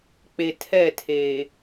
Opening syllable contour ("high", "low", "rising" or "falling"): low